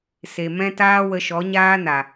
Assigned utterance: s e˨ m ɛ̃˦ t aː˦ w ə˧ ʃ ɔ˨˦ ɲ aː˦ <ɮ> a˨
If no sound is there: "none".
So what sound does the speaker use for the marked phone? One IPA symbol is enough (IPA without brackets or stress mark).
n